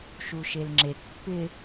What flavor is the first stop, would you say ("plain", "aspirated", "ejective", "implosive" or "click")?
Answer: click